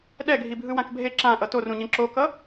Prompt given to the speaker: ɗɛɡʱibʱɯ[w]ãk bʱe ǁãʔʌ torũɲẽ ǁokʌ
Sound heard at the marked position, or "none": w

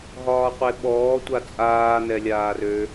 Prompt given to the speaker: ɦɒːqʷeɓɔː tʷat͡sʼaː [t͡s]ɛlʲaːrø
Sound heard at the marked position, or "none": n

